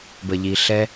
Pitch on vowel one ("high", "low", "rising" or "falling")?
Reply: low